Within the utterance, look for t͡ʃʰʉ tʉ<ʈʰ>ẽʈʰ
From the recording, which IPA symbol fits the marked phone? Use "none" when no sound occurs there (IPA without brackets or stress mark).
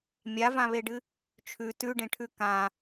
ɖ